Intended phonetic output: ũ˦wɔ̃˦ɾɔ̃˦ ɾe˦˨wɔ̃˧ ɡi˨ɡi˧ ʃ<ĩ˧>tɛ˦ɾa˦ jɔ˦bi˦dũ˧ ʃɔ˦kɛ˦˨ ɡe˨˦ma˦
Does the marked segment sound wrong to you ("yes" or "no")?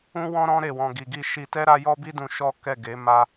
yes